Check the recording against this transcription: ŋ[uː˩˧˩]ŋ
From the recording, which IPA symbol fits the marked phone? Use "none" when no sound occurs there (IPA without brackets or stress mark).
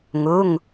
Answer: uː˩˧˩